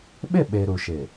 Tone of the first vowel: falling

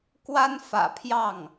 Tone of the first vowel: high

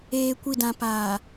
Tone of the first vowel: low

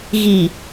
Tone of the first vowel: low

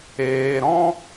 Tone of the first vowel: low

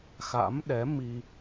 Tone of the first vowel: rising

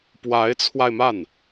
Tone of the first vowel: rising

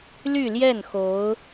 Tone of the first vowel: falling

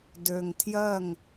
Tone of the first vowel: low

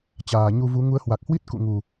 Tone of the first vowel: low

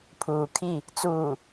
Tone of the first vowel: low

